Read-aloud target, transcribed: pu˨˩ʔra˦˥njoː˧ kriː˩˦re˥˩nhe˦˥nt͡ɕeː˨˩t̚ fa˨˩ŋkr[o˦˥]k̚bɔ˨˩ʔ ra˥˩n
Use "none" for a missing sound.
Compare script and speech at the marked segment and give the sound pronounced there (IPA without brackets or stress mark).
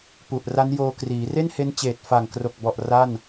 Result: o˨˩